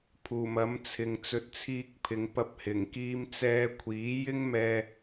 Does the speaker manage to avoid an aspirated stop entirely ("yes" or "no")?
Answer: no